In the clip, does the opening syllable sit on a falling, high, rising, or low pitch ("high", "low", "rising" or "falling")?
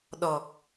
low